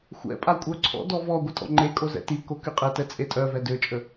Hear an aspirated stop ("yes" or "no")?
yes